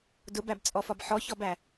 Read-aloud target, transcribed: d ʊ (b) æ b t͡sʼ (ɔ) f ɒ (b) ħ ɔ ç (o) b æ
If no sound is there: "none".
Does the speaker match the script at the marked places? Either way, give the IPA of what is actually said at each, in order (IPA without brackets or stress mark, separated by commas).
b, ɔ, b, ɔ